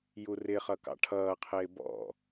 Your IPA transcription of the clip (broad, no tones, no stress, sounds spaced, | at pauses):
j u r ɪ χ ʌ k ɑ̰ ʈʰ ʌː qʰ ɪː b ɔ̰